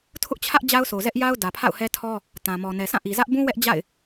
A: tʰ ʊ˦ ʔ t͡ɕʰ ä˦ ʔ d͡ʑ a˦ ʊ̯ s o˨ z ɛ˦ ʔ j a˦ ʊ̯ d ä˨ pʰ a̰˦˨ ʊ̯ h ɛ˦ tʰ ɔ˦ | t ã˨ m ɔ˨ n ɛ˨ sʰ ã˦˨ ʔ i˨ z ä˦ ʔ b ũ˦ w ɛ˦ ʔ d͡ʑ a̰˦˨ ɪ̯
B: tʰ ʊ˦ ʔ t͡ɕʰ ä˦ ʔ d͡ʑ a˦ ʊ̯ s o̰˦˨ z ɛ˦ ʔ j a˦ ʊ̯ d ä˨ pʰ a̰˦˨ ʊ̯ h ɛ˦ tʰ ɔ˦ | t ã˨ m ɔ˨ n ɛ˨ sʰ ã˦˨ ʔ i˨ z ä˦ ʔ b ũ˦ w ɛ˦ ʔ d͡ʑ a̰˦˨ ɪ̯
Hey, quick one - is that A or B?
A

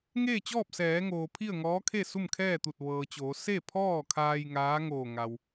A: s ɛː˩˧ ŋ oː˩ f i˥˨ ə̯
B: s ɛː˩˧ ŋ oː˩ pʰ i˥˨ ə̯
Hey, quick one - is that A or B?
B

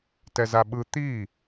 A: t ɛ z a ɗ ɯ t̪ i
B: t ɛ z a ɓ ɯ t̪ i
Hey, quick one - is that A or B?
B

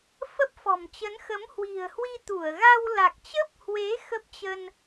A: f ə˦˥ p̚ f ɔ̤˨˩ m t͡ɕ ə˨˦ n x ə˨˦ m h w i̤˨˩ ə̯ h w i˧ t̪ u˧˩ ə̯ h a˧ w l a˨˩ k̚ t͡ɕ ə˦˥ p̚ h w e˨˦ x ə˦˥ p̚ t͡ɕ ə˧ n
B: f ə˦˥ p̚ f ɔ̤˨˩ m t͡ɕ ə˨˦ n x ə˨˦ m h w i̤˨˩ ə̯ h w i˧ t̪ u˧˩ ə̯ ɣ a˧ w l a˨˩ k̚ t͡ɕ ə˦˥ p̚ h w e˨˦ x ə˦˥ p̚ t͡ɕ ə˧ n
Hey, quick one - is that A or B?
B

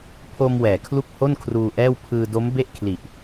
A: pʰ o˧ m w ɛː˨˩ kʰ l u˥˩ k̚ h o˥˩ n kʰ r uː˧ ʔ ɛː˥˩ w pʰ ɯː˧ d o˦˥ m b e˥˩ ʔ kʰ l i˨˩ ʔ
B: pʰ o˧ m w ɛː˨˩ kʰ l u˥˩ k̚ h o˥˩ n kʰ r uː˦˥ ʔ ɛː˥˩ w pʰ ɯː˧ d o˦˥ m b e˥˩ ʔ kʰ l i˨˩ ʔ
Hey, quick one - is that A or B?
A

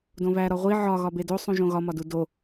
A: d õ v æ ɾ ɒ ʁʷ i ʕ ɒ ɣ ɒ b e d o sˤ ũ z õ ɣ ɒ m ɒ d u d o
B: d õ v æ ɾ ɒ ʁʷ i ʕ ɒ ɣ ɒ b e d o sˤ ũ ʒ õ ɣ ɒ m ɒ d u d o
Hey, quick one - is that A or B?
B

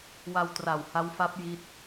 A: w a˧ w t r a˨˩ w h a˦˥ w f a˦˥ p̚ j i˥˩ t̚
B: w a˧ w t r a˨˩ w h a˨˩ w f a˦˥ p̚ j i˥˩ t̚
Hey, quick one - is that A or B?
A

